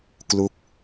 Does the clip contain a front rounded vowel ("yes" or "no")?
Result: no